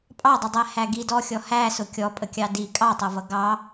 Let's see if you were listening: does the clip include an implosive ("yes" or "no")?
no